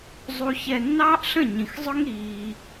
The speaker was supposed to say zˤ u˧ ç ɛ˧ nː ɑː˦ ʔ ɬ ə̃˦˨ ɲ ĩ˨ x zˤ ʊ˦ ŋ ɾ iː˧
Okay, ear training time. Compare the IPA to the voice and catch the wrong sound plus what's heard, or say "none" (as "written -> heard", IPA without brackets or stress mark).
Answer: none